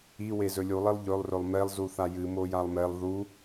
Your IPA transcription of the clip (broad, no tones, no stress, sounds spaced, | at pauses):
i w e z ɵ lʲ u lˠ i lˠ ʎ ɵ lˠ r ɵ lˠ m e lˠ z u θ a j ɨ m o j a lˠ m e lˠ ð u